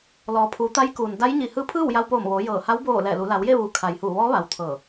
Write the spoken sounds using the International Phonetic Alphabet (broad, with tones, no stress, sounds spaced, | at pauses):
l ɔː˩˧ pʰ uː˩˧ t̪ a˧˥ j k uː˩ n d a˧˥ j ɲ i˧˩ h ɯː˧˥ pʰ ɯː˥˨ w j a˧ w p oː˧˩ m ʋ oː˩˧ j ɤː˧˩ h a˧˥ w b oː˧˩ l ɛː˧˩ l u˩˧ l a˩˧ w j e˥˨ ʋ uː˩ kʰ a˩ j h uː˧˩ ʋ ɔː˧˥ ʋ a˩ w t̪ʰ ɤː˧˩